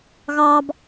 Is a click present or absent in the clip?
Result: absent